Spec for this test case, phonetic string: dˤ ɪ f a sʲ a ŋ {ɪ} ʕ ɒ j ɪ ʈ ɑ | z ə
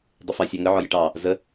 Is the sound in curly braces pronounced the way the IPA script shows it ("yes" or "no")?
no